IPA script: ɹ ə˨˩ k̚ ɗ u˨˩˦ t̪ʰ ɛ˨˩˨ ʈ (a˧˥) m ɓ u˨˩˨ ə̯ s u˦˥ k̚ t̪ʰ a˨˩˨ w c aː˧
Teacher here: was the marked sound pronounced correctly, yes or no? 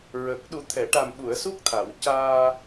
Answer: no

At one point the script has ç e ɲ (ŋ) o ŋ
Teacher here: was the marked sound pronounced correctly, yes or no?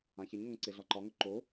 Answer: yes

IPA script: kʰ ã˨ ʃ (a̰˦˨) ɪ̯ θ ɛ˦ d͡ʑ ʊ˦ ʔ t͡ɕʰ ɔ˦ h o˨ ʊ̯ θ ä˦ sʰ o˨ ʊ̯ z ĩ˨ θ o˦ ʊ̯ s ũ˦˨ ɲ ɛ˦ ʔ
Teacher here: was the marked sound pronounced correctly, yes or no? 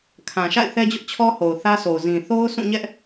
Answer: yes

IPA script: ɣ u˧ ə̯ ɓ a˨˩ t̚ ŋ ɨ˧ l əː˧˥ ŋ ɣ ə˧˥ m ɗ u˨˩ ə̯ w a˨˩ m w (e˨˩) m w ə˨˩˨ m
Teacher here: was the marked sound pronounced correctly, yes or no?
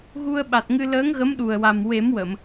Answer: no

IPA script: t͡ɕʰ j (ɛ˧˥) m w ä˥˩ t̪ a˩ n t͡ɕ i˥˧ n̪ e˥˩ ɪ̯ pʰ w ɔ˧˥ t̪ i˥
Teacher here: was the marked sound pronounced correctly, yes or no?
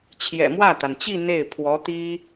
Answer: no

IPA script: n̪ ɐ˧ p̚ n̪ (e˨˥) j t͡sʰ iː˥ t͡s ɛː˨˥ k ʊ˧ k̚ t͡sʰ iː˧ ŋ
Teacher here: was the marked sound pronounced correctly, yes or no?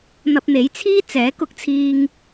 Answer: yes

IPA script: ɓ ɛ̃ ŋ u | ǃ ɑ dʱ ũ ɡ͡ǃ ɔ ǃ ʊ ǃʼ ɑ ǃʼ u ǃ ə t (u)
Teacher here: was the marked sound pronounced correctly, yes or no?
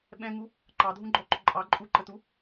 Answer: yes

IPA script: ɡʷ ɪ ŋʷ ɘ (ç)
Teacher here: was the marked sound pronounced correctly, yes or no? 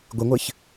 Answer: yes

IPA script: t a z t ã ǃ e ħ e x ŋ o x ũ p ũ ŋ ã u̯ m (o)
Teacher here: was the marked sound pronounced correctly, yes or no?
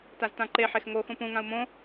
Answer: no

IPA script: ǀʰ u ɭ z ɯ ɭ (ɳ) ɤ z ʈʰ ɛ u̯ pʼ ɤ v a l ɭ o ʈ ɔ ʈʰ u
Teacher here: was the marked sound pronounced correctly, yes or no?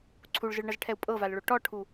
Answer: yes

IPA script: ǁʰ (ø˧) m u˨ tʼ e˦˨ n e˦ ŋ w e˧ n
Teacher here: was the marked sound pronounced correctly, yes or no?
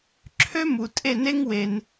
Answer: no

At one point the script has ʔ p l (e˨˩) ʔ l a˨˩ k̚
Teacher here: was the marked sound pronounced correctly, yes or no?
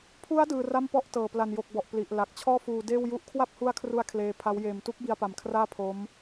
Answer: no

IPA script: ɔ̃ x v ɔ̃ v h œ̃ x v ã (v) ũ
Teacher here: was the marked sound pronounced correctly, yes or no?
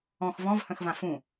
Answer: no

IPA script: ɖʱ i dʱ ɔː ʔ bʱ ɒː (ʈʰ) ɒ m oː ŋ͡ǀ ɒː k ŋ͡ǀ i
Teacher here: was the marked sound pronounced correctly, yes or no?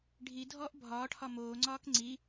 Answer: yes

